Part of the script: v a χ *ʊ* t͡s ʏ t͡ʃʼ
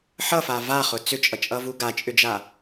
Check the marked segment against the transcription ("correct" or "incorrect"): correct